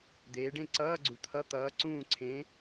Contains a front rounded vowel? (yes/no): no